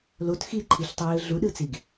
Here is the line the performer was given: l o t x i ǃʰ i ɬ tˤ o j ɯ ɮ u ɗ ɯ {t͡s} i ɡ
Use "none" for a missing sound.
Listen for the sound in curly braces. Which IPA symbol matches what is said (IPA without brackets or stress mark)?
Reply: t͡s